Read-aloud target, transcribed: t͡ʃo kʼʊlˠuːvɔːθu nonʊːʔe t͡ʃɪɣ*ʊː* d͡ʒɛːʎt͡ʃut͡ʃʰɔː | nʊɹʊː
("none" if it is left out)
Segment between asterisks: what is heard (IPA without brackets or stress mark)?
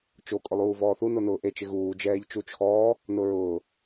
uː